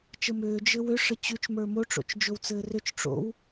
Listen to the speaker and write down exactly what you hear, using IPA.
t͡ʃəmʏː d͡ʒɘwʏ ʂət͡ɕʉt͡ʃmə˞ moʈ͡ʂo̰t͡ʃ d͡ʒowt͡sɘːrʏt͡ʃ ʈ͡ʂo̰w

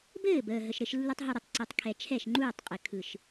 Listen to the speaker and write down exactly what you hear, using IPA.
bɘː˦˨bəː˨ ɦə˨ʃɾɘ˧ʃlːu˧tˤ ɦu˨ɾə˨tˤ ǀɯ˨tˤkʰɛ˨ t͡ʃʰɛ˦˨ʃŋ͡ǃuː˦˨tˤqʼɘ˨ kʰɯ˨ʃ

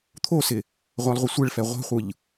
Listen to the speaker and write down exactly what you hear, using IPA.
t̪ʰosɪ | ʁʷalˠʁʷɪsʷɛɭfɛ ʁʷɛ̤χʷɯʎ

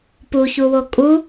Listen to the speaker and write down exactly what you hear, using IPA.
puçuwo kʼu

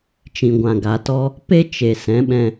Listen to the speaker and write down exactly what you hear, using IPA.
t͡ʃĩ˨ɡʷã˨ɡa˨tɔ˦ | pe˦ t͡ʃe˨ sɛ̃˨˦ɓɛ̃˧

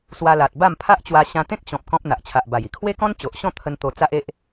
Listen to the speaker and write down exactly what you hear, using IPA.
swa˧la˨t̚ ba˥˧mpʰa˦ʔt͡ɕwa˧ ɕã˧t̪ẽ˦k̚ɕɔ̃˨p̚ kɔ̃˦p̚n̪a˨ʔt͡ɕʰa˨ʔba˨˩j i˨˩kʰwe˦kɔ̃˦n t͡ɕo˨ʔɕɔ̃˥˧t̪ʰə˧n t̪o˧t͡sa˦ʔe˦ʔ

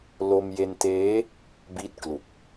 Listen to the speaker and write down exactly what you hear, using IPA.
lo˧mje˧nteː˦˥ | bi˦˥t̚klu˨˩k̚

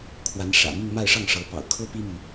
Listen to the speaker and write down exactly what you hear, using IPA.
kʰwa˧˥nʂä̰˨˩mi˥˧ŋ ma˥˧ɪ̯ʂɑ˥˩ŋʂɤ˧˥ pɑ̰˨˩ʊ̯kʰɤ˥pi˥my˨

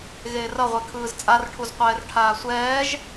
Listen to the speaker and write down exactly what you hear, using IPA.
ɣeːrʌʁʷe kʰɯːzt͡sʼarʈʰuz qʷɛːrʈʰaːsʷɛːʒ

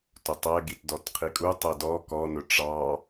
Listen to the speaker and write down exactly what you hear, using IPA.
tʊtˤɛ ɡitdɔtqʰikʼu tˤɛdɔ kɔnʊ ʈ͡ʂɑ

